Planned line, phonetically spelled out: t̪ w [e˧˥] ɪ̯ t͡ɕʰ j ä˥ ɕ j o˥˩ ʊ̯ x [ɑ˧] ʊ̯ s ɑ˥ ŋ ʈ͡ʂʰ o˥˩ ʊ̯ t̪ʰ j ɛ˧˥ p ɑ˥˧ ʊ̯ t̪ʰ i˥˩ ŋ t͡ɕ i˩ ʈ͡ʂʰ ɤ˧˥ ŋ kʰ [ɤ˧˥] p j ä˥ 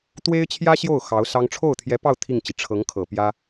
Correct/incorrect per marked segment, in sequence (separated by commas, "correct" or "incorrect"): incorrect, incorrect, incorrect